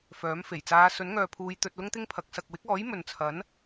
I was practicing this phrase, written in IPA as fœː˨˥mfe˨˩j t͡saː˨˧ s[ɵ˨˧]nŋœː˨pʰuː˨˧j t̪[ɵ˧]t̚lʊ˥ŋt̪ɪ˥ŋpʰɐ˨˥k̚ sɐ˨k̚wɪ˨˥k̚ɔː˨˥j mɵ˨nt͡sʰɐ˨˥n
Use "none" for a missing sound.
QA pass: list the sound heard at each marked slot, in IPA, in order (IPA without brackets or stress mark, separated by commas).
ɵ˨˥, ɵ˧